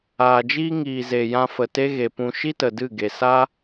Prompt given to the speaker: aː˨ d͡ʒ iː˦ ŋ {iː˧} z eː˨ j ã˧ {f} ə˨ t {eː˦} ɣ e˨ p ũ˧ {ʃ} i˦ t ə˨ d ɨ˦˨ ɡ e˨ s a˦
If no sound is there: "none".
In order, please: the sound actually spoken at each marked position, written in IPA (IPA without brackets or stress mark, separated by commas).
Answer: iː˨, f, e˦, ʃ